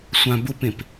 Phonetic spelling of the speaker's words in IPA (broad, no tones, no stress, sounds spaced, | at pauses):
sʷ ã b ʊ p ẽ p